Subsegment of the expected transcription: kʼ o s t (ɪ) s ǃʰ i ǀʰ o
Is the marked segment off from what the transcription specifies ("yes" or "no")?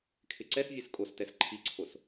yes